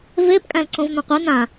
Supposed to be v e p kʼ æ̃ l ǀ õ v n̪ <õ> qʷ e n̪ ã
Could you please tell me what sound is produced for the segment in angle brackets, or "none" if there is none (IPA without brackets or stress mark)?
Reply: ɔ̃